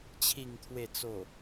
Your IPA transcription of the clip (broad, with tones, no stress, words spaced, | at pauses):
t͡ɕʰi˨˩ŋt̪ʰwe˨˩t͡so˨˩